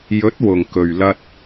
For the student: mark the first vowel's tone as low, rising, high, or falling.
rising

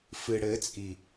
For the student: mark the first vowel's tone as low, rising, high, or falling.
low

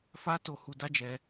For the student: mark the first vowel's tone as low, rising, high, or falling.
high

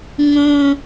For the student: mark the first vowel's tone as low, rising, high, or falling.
high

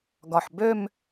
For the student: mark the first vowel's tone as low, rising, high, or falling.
low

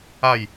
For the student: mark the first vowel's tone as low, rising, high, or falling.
falling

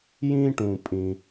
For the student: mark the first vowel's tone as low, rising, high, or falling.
high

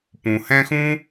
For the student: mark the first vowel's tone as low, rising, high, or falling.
low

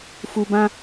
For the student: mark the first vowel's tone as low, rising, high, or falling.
low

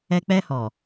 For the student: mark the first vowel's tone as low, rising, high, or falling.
high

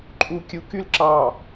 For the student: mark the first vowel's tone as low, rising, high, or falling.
low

